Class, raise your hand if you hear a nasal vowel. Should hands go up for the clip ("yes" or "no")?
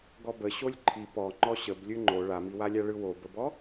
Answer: no